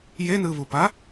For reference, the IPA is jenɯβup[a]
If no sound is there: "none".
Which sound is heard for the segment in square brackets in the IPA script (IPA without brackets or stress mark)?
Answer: a